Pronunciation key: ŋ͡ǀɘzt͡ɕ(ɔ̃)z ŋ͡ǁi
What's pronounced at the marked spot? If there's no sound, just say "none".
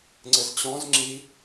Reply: ɔ̃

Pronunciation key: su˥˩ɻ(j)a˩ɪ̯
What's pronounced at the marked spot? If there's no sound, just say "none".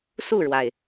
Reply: w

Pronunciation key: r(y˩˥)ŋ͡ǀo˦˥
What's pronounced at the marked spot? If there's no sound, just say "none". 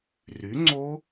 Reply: y˩˥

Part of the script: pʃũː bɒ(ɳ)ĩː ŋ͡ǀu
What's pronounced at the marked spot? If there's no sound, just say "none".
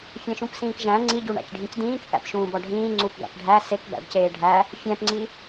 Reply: ɖʱ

